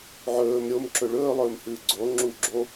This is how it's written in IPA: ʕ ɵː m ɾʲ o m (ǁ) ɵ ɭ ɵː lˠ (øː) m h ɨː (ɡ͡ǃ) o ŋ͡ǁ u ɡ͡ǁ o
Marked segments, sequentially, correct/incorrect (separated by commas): correct, incorrect, incorrect